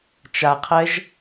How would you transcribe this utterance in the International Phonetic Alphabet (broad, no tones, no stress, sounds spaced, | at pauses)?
t͡ʃ a qʰ ɛ ʒ